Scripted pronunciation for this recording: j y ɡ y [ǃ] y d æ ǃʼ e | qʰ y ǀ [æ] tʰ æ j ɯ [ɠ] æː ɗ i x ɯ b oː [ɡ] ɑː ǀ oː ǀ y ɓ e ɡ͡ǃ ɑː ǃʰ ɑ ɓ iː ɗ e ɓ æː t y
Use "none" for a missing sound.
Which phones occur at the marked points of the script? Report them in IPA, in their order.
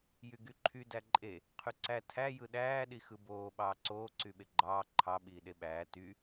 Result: ǃʰ, æ, ɗ, ɓ

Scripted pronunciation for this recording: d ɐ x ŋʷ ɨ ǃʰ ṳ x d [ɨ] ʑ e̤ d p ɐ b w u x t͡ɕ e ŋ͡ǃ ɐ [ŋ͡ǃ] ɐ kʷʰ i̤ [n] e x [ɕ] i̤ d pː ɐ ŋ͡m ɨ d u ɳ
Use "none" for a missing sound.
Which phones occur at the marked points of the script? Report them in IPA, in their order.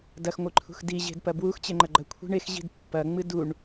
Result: i, ɡ͡ǃ, ɳ, ʑ

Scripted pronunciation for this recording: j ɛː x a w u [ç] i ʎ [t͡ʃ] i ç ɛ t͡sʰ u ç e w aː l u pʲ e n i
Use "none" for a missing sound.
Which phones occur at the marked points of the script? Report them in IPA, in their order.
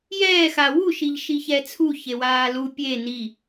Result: ʃ, ʃ

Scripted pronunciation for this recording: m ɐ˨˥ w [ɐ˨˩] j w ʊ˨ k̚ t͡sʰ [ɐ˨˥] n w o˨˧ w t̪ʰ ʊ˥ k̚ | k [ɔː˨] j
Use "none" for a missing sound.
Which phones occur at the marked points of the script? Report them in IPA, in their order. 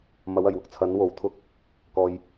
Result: ɐ˨˩, ɐ˨˥, ɔː˨

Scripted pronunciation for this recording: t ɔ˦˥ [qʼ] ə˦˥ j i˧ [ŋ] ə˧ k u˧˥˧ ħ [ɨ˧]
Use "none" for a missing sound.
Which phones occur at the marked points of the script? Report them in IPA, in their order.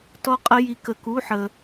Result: qʼ, k, ə˧

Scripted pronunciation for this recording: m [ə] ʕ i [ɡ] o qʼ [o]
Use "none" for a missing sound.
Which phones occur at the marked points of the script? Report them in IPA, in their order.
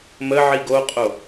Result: ə, ɡ, o

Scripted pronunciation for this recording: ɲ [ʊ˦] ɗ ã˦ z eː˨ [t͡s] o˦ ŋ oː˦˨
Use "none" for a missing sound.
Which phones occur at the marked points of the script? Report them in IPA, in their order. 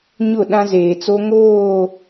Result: ʊ˦˨, t͡s

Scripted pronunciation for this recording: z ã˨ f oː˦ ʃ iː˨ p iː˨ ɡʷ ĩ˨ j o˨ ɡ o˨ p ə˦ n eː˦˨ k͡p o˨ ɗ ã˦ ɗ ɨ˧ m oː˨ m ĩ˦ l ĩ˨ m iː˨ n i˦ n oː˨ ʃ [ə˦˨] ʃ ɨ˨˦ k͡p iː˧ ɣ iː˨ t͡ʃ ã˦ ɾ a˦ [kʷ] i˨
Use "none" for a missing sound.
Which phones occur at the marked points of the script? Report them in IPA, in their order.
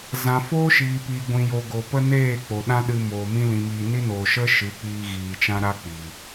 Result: ə˦, k͡p

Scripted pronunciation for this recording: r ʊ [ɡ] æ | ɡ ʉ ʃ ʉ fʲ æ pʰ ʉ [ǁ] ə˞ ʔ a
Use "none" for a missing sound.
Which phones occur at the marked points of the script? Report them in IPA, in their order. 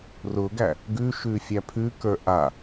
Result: ɡ, k

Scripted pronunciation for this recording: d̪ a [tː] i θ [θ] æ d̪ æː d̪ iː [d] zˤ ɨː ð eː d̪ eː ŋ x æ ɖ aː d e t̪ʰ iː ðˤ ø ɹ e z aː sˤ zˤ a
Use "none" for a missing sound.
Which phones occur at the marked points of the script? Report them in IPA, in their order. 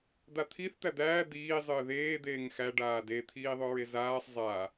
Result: t̪ʰ, t̪, none

